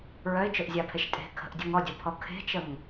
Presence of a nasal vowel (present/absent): absent